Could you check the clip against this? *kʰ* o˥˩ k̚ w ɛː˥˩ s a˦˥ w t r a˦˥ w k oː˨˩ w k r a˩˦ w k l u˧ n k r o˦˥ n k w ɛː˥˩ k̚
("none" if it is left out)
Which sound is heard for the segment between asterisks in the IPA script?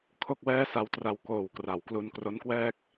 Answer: kʰ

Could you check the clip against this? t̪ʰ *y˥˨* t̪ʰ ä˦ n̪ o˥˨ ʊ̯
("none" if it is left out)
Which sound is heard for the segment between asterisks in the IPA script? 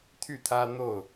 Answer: y˥˨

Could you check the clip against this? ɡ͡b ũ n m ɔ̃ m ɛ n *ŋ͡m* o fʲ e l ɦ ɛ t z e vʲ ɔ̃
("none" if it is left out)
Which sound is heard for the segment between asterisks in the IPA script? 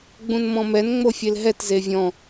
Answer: ŋ͡m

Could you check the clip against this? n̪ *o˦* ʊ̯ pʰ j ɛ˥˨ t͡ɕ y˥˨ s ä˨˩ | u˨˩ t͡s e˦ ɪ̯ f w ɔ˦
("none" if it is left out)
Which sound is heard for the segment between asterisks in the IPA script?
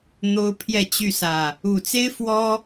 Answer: o˦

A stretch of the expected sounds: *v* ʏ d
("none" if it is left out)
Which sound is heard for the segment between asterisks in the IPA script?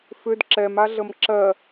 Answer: f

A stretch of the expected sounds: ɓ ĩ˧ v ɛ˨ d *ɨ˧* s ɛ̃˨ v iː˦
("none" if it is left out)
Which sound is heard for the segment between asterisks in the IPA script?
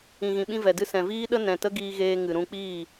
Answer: ɨ˧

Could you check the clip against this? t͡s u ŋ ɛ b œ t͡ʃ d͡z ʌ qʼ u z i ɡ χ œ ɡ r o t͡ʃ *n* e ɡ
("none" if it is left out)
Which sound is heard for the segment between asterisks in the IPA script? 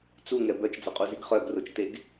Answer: t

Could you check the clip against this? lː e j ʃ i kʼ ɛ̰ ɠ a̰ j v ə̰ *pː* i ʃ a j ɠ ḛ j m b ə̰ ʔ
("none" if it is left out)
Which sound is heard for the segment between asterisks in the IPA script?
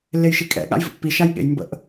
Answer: pː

